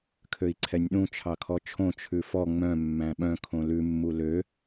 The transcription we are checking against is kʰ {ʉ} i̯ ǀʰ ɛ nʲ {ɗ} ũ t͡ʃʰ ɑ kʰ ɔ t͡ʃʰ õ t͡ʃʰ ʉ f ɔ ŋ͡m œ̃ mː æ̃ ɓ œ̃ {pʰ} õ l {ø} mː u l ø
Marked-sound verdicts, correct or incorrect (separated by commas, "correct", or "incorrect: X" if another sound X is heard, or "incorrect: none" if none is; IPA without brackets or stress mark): incorrect: ø, correct, incorrect: kʰ, incorrect: ʉ